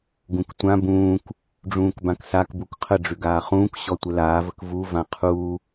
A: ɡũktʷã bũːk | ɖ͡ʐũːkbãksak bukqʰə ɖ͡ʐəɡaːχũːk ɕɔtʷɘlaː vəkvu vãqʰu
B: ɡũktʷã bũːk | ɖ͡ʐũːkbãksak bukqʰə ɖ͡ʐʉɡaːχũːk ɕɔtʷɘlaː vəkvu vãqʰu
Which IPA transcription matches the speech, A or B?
B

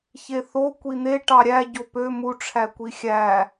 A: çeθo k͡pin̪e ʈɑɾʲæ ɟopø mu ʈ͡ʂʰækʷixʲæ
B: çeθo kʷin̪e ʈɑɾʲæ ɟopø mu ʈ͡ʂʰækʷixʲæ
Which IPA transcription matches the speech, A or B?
B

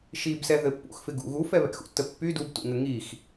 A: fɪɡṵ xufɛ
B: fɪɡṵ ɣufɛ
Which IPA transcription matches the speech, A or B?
B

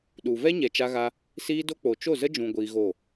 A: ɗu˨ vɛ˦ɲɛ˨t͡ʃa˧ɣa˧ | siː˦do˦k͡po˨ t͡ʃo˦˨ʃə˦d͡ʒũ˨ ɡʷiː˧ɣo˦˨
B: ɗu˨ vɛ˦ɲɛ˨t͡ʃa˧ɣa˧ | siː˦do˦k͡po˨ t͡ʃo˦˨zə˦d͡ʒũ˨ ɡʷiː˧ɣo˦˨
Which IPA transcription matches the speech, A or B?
B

